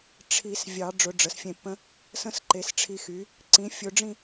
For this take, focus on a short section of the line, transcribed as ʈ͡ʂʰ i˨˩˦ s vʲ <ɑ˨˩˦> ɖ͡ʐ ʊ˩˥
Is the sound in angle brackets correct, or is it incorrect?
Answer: correct